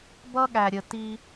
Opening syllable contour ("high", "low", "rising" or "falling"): high